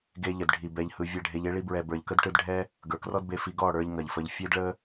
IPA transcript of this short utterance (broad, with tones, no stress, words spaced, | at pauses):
ɡe˧ʎə˨dɖʱi˨ bɛ˧ʎhɯ˧ vʲɛ˦˨ɖʱe˧ʎe˦ ɭi˧bɹɛ˨ bə˞˨ʎkə˦dʈɯ˧d ɖʱɛ˦ | ɡə˞˨krɔ˦dbe˧fi˧ ɡɔ˦˨ɽə˞˧ʎ ŋɐ˨ʎfə˧ʎ fʲe˦dɭə˦